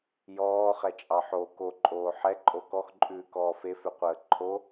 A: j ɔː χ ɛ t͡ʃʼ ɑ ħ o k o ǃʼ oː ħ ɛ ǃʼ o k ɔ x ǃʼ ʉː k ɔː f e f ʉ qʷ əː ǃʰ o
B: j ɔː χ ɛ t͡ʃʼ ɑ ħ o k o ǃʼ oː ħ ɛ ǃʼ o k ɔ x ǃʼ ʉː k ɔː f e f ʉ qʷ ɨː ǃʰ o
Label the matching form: A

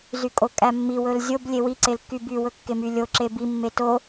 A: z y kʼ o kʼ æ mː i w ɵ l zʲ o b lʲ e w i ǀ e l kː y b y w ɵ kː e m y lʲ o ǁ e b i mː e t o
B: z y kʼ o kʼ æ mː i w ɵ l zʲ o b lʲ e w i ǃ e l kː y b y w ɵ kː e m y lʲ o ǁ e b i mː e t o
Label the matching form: A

